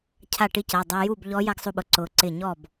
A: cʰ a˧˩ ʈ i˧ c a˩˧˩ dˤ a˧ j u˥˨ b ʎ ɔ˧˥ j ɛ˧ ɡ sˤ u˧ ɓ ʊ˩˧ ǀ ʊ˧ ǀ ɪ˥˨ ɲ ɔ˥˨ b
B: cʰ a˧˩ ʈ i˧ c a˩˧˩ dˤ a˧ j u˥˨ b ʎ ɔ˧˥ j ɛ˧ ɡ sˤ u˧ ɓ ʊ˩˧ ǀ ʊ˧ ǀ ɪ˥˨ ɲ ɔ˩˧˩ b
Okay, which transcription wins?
A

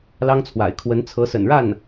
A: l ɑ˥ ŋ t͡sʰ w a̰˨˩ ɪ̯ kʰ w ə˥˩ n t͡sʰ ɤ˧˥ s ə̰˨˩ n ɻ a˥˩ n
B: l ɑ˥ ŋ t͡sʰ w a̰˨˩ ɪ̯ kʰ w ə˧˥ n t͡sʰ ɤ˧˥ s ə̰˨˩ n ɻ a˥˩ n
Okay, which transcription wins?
B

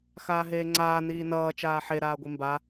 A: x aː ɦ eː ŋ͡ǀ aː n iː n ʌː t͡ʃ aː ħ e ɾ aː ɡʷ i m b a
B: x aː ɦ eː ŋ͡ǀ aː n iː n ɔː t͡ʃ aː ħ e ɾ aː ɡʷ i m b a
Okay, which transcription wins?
A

